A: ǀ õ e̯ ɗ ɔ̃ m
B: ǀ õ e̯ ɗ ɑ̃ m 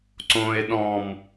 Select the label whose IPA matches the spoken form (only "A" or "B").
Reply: A